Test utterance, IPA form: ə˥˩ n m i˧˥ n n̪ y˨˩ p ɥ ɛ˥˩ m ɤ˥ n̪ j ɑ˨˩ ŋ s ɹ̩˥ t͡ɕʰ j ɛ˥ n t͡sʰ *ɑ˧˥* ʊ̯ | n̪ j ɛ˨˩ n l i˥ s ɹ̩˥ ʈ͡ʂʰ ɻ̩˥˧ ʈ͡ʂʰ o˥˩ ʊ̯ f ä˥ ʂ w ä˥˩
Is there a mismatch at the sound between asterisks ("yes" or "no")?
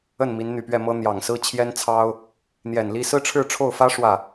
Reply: yes